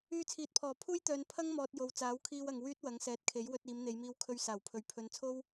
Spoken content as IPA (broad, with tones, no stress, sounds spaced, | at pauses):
yː˧ t͡sʰ iː˨ t̚ pʰ ɔː˨˩ pʰ uː˥ j t̪ œː˨˧ n pʰ ɐ˥ ŋ m ɔː˨ t̚ j o˨ w t͡s aː˨˥ w kʰ iː˧ w ɐ˨ ŋ w yː˥ t̚ w ɐ˨˥ ŋ s ɛː˨ t̚ kʰ e˨˥ j w ɵ˧ t̚ iː˨˧ m n̪ e˨˧ j m iː˧ w kʰ ɵ˧ ɥ s aː˨˩ w pʰ ɵ˨ ɥ pʰ ɵ˨ n t͡sʰ o˥ w